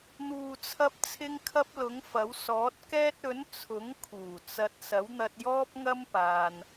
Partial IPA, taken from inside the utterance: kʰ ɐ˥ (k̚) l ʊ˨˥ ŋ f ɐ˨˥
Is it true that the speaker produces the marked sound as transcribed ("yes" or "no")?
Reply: no